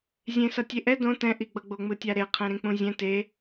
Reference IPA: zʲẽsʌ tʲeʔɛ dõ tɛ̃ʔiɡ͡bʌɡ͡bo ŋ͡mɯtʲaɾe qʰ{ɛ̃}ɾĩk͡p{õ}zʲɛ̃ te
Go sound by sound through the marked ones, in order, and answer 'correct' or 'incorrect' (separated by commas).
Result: correct, incorrect